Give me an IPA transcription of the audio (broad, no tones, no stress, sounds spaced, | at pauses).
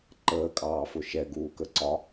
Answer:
ǃ əː kʼ ɑː f ʊ ʃ ɛ ɡ uː k ə ǀ ɒ